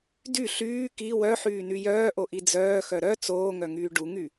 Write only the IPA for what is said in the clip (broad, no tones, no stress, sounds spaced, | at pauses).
d y ɬ yː k i w œ ħ yː n y j œː ʔ o ʔ i d͡z œː x œ ɾ œ t͡s oː ŋ œ ŋ yː ɖ u ŋ y